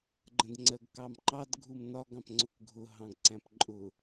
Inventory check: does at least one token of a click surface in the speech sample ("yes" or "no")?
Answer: yes